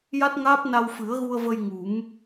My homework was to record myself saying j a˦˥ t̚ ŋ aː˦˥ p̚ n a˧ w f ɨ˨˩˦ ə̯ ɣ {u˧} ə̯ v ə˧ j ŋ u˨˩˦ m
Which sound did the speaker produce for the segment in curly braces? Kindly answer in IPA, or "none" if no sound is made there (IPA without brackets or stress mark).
u˧